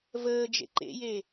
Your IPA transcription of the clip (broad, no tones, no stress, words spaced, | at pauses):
vəː d͡ʒḛǃḛje